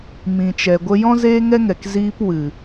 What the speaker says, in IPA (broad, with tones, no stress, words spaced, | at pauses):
mĩ˨t͡ʃɛ˨ɡʷə˧ jɔ̃˦zeː˦ŋɛ˦ŋɛ˨k ziː˧pwɨ˨